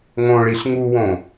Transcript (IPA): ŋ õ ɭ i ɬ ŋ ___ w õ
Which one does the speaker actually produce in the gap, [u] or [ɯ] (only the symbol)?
u